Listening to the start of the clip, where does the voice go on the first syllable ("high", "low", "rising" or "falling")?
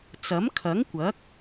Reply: rising